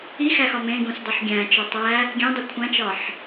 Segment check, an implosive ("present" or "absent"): absent